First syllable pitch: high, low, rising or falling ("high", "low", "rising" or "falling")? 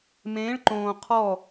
rising